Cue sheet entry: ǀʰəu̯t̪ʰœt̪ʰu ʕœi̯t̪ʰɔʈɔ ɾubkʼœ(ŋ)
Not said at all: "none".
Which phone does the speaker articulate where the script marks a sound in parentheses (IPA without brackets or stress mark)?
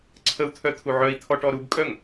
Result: ŋ